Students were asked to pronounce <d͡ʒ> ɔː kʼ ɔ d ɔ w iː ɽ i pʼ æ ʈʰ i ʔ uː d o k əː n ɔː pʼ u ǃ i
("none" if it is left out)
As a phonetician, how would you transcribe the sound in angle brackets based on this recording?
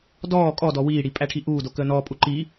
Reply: d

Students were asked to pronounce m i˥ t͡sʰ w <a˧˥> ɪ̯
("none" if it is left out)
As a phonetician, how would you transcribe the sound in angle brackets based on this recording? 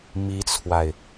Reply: a˨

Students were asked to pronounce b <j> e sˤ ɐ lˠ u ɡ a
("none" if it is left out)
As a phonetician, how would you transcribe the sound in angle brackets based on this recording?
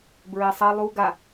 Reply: ɹ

